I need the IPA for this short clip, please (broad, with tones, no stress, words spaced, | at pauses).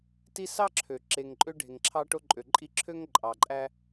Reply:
ti˦sɑ˥ǁʰø˩ ǁe˨ŋǃʼø˥ ɖʱe˨ŋǁʰɑ˥ʈo˥ǃʼø˨ ǃʼi˦ǁʰø˥ŋ ǃʼɑ˨ǃʼæ˥